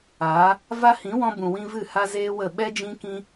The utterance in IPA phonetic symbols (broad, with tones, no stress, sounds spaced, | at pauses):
aː˨˦ | v a˦ h ĩ˨˦ w ɔ̃˧ b ũ˨ w ĩ˧ v ɨ˦˨ h a˦ z eː˦ w ə˦˨ ɓ ɛ˦ d͡ʒ ĩ˦ k ĩ˦